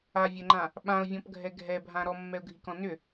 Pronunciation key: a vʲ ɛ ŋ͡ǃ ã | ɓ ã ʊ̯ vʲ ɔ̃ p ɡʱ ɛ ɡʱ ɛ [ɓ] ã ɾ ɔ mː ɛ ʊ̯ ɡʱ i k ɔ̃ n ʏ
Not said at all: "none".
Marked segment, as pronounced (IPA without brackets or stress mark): bʱ